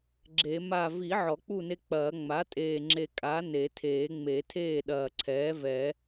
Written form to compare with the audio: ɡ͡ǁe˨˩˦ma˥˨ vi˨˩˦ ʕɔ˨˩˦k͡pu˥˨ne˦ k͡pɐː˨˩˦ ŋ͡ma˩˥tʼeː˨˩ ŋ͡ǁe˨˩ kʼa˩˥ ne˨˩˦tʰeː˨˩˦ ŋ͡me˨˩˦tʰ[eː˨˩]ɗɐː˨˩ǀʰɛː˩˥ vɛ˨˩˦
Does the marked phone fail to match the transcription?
yes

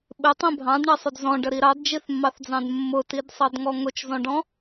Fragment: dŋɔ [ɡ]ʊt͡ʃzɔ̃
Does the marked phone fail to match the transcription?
yes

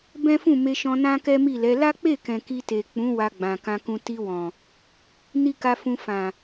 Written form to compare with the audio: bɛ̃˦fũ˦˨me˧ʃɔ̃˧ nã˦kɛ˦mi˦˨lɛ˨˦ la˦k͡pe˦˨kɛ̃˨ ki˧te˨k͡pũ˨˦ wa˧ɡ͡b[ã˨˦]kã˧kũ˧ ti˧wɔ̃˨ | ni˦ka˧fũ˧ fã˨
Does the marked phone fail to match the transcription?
yes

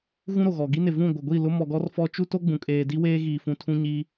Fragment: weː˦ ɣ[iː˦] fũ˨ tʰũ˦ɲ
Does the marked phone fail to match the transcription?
yes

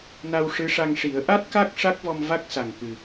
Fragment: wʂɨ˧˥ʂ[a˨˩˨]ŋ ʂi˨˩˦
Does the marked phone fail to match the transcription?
yes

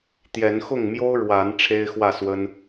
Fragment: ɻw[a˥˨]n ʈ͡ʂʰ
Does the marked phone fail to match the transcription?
yes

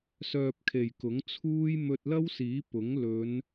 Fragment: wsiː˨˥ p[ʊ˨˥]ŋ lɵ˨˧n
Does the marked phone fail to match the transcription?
no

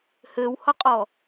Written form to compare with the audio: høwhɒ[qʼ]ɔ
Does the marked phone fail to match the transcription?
no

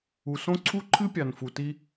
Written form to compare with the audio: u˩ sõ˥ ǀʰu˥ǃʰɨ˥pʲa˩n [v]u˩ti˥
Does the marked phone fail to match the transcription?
yes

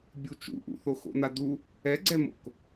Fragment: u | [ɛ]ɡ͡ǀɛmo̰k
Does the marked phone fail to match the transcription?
no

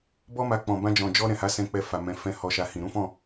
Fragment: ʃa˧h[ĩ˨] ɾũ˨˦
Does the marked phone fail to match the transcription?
no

